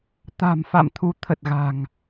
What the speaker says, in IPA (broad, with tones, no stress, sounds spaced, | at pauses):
t̪ a̤˨˩ m f a̰˧˨ m t̪ʰ u˨˦ t̪ʰ ə˨˩ t̚ ɣ a̤˨˩ ŋ